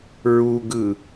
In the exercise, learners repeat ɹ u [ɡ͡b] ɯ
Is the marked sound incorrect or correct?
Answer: incorrect